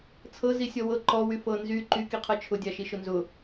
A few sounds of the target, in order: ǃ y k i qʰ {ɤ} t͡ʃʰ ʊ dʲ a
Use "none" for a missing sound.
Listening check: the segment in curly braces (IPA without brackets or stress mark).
ɤ